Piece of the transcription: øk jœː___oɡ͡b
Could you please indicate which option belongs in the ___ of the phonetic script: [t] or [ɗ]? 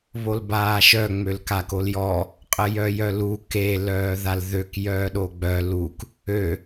ɗ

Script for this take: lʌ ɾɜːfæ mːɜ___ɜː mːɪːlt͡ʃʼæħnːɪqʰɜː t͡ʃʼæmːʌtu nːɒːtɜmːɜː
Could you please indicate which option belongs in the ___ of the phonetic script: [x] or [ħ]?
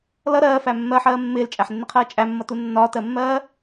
ħ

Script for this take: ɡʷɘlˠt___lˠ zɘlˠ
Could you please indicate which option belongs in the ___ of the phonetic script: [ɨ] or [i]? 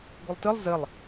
ɨ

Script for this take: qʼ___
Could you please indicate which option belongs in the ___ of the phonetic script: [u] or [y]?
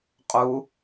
u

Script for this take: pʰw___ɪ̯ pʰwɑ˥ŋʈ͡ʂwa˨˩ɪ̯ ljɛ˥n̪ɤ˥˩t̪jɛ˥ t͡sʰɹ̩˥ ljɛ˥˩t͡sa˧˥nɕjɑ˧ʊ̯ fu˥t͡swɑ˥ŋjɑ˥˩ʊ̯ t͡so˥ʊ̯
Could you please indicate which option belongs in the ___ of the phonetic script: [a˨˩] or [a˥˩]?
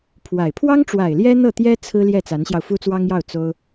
a˨˩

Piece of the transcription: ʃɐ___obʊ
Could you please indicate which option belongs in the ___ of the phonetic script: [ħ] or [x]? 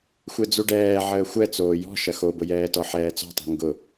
x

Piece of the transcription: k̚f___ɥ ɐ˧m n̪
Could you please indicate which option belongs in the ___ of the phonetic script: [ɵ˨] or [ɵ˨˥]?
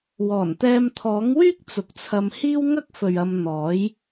ɵ˨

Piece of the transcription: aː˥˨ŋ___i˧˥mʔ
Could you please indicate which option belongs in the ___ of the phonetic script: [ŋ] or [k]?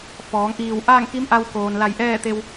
k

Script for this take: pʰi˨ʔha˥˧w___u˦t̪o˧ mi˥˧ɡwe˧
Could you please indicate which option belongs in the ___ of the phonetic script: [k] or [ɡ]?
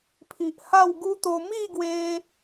ɡ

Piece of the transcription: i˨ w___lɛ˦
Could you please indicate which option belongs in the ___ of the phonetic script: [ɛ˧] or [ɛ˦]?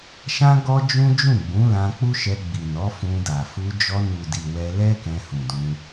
ɛ˧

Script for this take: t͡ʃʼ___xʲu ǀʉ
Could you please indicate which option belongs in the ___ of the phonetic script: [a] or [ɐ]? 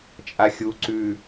a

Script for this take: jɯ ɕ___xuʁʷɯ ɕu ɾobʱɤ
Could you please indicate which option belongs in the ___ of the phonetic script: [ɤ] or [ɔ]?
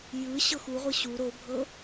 ɤ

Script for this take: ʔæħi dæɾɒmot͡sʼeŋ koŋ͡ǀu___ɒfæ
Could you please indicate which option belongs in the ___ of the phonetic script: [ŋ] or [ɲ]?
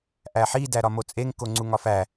ŋ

